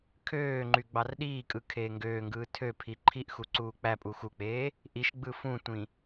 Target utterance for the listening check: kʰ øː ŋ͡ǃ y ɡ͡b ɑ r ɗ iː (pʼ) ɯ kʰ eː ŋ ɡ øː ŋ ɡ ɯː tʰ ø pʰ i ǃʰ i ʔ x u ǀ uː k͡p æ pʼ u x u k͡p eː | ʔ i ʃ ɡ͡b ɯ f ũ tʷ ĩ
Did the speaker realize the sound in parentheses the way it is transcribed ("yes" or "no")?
no